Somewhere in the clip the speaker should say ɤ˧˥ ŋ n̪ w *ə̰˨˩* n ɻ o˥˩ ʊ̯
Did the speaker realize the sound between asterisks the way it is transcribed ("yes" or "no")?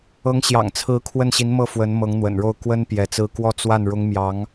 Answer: yes